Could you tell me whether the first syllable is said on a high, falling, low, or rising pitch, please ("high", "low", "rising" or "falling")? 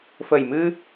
low